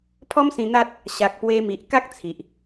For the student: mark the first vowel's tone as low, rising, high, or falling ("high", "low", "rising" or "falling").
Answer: high